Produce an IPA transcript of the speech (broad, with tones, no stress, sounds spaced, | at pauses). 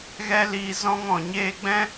ɣ ɛ˦ l iː˧ z ɔ̃˦ ŋ ɔ̃˨ ɲ eː˦ ɡ͡b ɛ̃˦